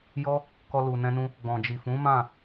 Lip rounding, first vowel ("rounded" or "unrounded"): rounded